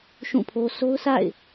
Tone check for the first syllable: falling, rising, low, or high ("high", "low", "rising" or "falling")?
falling